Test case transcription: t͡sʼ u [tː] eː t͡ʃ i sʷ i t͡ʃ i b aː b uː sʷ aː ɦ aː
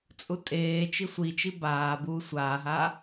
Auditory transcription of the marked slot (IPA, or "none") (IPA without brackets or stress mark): tʼ